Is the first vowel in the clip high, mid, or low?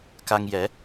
low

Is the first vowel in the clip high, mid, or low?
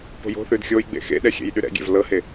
mid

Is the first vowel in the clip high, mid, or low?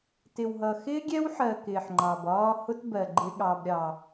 high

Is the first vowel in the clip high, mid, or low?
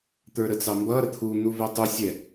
mid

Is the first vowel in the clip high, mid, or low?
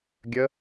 mid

